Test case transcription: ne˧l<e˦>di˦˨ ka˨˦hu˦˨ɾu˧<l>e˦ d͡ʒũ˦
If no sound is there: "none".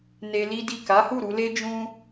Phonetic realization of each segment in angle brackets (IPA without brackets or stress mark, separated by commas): i˦, l